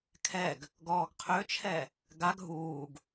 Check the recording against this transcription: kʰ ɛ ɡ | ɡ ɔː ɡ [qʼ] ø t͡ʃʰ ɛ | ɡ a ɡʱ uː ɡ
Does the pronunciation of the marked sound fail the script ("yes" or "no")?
yes